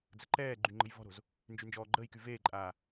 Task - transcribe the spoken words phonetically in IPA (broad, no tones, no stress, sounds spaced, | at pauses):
d͡z ə ǃ ɛː ɡ͡ǃ y ŋ͡ǃ ə̤ j v ɔ̤ ɾ o̤ z | n d͡ʒ y n d͡ʒ ɔː ɡ͡ǃ əː j k y v eː ǃʼ aː